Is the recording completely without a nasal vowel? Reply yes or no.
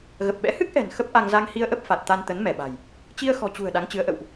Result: yes